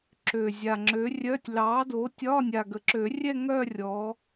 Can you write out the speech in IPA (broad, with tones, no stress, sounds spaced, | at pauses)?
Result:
ǁ ø˨˩ zʲ a˨˩ ŋ͡ǁ ø˨˥ rʲ œ˧˥˧ tʲ l ɑ˨˥ d o˨˥ tʲ ɒ˧˥˧ nʲ a˨˩ ɡ ə˨˩ ǁ ø˨˩˦ rʲ ɛ˥˧ ŋ œ˥˧ rʲ ɔ˨˥